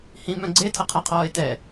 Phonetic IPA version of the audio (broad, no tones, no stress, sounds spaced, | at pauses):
h ĩ m œ̃ ɡ͡ǀ e tʰ ɐ qʰ a qʰ ɔː ɪ̯ t ɛ